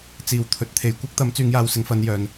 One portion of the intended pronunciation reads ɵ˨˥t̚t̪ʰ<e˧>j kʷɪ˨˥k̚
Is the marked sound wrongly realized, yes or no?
yes